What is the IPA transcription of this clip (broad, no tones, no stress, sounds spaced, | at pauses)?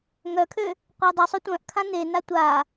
ŋ œ kʰ ø | qʷ e dˤ i sˤ u tʷ œ̃ ʔ kʰ ã n e n a tʷ a